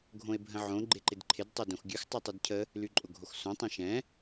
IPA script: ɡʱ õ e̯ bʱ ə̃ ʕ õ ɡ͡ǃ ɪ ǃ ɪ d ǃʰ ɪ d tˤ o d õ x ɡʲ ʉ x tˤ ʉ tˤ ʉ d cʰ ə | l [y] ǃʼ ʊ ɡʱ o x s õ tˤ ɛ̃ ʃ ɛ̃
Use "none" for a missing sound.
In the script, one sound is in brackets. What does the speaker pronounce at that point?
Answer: y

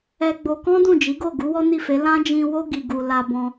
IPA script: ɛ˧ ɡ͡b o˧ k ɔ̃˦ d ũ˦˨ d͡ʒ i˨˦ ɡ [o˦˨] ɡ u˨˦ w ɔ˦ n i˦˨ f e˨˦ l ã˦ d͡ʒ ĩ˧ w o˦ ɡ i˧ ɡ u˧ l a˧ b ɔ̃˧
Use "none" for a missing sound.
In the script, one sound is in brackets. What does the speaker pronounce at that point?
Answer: o˦˨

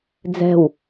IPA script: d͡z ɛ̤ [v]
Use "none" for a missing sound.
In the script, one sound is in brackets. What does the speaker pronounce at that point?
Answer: w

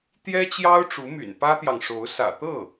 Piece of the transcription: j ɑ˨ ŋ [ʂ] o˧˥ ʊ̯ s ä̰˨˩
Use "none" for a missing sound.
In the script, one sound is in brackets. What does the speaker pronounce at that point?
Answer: ʂ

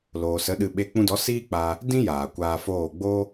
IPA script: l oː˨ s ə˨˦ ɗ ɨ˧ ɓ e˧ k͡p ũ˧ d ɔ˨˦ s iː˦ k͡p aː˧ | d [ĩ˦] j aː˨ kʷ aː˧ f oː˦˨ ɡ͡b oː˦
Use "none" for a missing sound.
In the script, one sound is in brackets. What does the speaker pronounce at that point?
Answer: ĩ˦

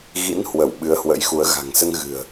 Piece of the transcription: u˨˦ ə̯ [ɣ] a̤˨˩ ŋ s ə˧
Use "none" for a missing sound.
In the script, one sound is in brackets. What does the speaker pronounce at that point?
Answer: ɣ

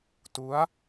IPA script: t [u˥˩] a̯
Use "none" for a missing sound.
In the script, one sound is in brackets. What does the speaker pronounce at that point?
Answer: u˦˥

